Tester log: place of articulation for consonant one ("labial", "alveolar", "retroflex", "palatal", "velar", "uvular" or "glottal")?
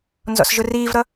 alveolar